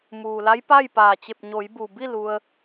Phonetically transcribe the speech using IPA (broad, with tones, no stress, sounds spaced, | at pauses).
m uː˩ l a˧˥ j p a˥˨ j p aː˧˩ t͡ɕ e˧˩ p̚ ɲ o˩˧ j b u˩ b i˥˨ l u˧ ə̯